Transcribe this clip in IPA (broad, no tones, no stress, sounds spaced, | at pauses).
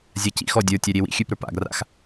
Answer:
zʲ a c ḭ x ɔ dʲ ə˞ tʲ a ɾʲ e w ḭ xʲ ʉ p ɾ ə˞ p a̰ ɡ r a̰ x